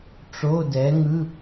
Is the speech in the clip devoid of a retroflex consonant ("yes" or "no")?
no